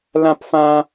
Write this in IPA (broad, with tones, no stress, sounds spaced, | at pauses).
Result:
l ã˥ p f ã˥